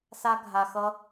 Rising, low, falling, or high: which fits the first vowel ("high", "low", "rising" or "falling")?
high